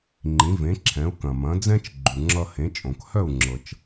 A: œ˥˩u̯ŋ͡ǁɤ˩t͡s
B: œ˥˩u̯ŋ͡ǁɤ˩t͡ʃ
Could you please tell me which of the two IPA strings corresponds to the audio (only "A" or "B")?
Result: B